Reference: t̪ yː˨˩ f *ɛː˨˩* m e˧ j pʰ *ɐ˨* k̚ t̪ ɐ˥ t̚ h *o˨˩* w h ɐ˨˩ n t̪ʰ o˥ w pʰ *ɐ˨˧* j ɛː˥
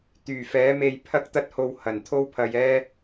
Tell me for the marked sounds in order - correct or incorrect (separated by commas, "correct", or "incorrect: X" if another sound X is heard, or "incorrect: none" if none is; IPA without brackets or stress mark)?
incorrect: ɛː˨˥, incorrect: ɐ˥, incorrect: o˧, incorrect: ɐ˧